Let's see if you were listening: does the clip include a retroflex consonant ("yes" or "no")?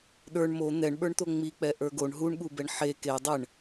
yes